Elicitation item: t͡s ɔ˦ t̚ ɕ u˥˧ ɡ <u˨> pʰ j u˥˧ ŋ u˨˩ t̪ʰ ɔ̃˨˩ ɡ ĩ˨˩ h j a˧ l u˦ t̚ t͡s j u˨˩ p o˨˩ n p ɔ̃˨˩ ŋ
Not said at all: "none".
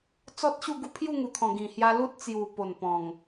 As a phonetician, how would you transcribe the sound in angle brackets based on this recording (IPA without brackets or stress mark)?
u˥˧